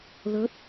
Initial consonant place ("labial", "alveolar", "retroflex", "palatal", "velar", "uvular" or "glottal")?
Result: alveolar